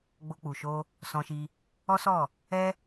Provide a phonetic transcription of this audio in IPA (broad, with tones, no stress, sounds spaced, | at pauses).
ɡ͡b o˧ k͡p u˨ ʃ o˧ | s ɔ̃˧ ʃ i˧ | ɔ˦ s ɔ˦˨ | ɛ˦